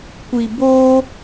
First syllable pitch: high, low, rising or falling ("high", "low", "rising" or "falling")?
low